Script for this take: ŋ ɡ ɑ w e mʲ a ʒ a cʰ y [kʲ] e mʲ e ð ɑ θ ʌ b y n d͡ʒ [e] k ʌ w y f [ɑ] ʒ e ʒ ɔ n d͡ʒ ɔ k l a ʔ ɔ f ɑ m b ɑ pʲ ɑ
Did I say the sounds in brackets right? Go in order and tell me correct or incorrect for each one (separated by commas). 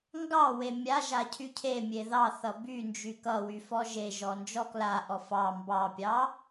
incorrect, incorrect, incorrect